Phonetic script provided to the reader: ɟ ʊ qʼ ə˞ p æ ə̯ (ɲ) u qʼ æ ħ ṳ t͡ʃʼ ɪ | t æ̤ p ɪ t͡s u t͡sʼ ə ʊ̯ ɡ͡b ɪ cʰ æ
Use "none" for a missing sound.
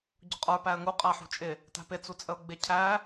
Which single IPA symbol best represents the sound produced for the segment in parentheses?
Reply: ŋ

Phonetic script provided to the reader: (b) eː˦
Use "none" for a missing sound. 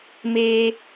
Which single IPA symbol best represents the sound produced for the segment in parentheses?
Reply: m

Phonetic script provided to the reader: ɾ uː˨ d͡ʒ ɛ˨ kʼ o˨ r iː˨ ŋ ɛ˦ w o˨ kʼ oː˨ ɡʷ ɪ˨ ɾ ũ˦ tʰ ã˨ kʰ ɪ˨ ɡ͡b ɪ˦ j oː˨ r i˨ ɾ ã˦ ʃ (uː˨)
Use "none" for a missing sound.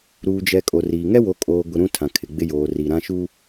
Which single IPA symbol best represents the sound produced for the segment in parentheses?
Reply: uː˦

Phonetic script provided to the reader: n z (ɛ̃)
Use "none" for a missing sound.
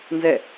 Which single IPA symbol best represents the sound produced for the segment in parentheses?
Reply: ɛ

